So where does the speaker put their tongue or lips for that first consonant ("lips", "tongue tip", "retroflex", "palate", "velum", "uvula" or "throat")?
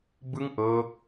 lips